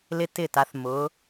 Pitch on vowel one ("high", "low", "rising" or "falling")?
high